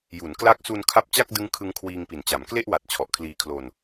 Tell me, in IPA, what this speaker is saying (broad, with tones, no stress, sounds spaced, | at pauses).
j u˩˦ n k l a˦˥ k̚ s u˧ n kʰ a˦˥ p̚ t͡ɕ a˥˩ k̚ d ɯ˦˥ ŋ kʰ ɯ˦˥ ŋ kʰ w iː˧ ŋ p i˨˩ n t͡ɕ a˩˦ m k l e˥˩ ʔ w a˨˩ t̚ t͡ɕʰ ɔ˨˩ ʔ kʰ l iː˧ kʰ l o˧ n